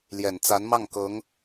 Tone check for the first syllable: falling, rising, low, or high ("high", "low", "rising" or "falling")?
low